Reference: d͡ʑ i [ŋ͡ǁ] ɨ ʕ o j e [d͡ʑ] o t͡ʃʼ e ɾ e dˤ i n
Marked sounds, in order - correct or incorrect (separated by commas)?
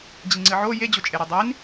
incorrect, correct